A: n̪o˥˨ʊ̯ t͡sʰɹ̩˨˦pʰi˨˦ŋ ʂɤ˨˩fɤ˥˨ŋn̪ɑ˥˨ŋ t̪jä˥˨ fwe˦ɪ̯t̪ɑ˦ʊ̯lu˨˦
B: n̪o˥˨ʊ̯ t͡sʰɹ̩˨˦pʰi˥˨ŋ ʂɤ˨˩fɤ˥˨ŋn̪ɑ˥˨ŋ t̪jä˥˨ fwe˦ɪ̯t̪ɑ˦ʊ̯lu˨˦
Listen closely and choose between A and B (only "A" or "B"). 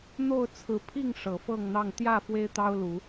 B